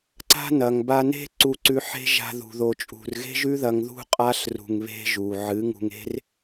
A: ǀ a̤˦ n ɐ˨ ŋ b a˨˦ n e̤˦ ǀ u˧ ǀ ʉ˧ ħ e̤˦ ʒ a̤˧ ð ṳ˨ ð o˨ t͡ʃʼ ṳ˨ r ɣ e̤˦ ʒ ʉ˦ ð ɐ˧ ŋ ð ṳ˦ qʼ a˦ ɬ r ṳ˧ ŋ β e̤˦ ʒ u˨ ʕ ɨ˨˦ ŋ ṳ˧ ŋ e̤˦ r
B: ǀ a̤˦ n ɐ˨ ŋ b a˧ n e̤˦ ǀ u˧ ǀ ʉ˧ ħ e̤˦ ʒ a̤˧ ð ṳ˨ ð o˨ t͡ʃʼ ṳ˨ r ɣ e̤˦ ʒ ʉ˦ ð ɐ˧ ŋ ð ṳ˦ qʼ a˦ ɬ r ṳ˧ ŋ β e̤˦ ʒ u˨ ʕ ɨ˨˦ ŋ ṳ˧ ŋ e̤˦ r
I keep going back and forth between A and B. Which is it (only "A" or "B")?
B